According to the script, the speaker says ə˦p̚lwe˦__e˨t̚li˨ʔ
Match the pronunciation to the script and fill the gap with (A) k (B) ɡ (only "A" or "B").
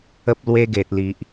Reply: B